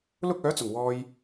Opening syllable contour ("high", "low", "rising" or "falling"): high